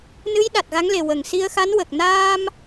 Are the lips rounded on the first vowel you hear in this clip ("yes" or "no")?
no